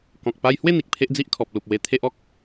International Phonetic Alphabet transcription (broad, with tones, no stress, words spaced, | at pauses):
kɔ̃˨k̚ pa˧jhwe˥˧ n̪i˨k̚pʰe˦ʔd͡zi˦ʔ kʰɔ˨p̚lu˨p̚ we˧ t̪ʰe˦ʔɔ˦k̚